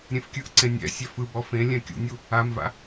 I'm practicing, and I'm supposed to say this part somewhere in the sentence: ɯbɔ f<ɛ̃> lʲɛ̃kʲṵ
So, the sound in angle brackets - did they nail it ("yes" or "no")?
no